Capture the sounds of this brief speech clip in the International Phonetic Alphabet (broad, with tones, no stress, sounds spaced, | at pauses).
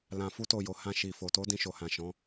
l ã˧ f u˦ t o˦˨ j o˨˦ h ã˧ ʃ i˨ f o˨ t o˨˦ d ĩ˧ ʃ o˨ h ã˨ ʃ ɔ̃˨˦